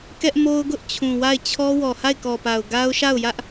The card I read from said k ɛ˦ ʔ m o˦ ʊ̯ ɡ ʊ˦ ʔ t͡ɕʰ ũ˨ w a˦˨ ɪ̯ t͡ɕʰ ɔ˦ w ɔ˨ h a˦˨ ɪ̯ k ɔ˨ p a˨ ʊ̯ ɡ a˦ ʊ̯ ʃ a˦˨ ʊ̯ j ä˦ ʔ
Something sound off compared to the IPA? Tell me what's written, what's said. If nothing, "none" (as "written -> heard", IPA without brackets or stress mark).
none